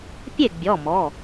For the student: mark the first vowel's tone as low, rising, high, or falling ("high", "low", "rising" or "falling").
falling